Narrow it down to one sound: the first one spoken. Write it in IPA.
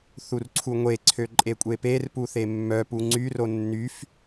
θ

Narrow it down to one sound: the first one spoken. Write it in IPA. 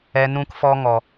ɛ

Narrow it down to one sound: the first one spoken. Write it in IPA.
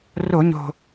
r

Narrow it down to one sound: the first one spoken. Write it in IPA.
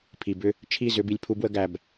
pʰ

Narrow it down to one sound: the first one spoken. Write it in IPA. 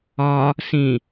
ɒ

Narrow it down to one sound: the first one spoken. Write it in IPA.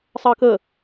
sˤ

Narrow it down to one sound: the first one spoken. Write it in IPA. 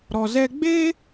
ɾ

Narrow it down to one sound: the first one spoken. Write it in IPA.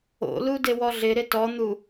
o̰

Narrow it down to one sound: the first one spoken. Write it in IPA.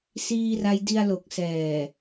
s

